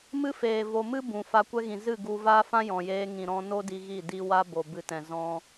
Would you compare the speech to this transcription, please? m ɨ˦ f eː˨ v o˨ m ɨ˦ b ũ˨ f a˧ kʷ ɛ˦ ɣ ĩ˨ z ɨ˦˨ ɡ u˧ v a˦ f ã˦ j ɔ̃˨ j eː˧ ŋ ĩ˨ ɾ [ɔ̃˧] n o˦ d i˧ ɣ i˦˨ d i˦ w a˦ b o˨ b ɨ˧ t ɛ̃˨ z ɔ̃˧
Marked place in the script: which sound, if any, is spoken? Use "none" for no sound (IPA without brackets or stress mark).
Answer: ɔ̃˧